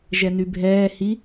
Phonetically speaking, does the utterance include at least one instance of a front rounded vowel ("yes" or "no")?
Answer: yes